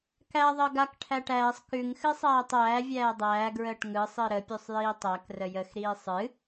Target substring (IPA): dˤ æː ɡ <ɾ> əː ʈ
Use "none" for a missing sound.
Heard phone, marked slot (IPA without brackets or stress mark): ɹ